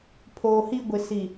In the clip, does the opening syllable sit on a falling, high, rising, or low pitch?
low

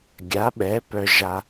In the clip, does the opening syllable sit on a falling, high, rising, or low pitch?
rising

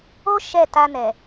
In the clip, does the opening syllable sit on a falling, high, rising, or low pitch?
high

